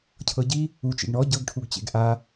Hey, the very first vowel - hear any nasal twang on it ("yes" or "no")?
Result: no